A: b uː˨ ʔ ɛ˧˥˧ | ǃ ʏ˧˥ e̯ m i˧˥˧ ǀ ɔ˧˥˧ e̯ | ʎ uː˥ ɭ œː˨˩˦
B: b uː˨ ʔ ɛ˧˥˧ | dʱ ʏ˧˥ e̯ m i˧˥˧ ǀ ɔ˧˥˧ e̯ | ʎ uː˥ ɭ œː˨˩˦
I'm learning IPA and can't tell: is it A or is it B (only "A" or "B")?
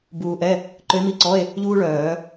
A